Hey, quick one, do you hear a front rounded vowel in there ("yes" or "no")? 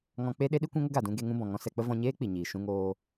no